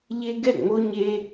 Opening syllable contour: high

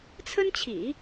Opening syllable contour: high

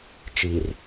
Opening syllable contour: low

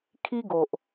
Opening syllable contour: high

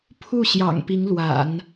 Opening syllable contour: falling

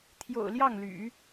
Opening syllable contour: low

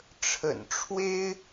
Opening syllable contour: low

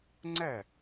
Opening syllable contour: falling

